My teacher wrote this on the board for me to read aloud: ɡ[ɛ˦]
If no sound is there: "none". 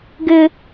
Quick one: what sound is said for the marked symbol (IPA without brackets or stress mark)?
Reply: ɪ˦